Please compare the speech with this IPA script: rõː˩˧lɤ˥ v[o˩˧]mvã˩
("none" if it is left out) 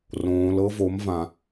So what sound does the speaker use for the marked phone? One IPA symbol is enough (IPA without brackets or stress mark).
o˩˧